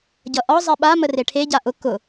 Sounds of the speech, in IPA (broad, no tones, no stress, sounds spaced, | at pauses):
ɟ ʌ ʔ ɒ zˤ ɛ ɓ a m ə r e ʈʰ e ɟ a ʔ ʊ k ʊ